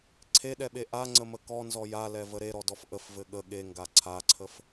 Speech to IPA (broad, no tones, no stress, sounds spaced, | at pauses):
ǀʰ e ɗ ɛ ɓ e ʔ a ŋ͡ǀ ə m ə k ɔ n z ɔ j a l ɛ v ə ɾ e ɾ ɔ d ɔ f ʔ ə f v ɘ ɠ ə ɠ e ŋ ɡ a ǀʰ a ǀʰ ə f